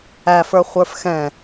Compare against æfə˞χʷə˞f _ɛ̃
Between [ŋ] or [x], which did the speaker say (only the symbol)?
x